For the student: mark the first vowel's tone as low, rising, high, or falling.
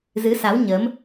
rising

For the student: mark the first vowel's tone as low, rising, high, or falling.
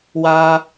low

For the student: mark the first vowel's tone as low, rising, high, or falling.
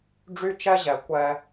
high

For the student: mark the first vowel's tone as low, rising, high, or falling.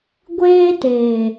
high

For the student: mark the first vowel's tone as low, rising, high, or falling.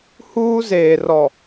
high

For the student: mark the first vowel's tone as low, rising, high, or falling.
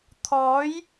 rising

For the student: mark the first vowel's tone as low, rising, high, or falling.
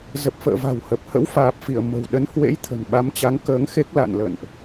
low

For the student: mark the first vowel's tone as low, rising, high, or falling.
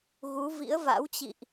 rising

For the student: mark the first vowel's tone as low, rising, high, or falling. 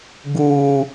high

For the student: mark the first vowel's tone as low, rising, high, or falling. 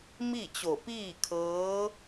falling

